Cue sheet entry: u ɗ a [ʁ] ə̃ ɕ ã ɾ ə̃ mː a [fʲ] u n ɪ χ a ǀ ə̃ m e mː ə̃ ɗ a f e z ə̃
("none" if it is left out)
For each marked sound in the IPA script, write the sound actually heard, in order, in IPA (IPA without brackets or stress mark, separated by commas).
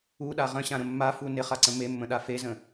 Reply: ʁ, f